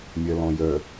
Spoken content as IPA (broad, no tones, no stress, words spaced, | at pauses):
mʲɜlɔ̃jœ